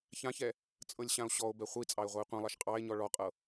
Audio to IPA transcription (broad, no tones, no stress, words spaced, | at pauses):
çãçɛ | t͡sʼɤlʲɕão̯ɕɔo̯bɛ χʷit͡sʼɑe̯ ʁʷie̯qʷãlˠɑʃ qʼɑe̯ ɲɔɭɔqʼɤ